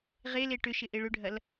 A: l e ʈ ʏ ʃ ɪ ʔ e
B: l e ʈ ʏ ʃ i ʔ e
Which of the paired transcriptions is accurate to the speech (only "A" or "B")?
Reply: A